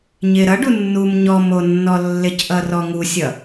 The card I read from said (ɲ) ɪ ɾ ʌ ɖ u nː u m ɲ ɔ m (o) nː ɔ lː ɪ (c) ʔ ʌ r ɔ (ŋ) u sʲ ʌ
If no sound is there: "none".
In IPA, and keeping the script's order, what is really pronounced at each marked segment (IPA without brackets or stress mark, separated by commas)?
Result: ɲ, o, c, ŋ